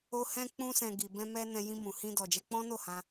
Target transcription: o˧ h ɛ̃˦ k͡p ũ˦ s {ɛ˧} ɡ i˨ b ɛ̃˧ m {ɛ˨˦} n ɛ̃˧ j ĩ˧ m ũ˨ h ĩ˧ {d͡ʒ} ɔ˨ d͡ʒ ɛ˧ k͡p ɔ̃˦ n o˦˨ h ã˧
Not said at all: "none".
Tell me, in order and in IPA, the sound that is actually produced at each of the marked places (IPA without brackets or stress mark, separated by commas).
ɛ̃˧, ɛ˧, d